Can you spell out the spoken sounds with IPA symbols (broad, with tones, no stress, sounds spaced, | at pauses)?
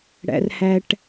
ɽ æ̰˨ r h æ˨ ʈ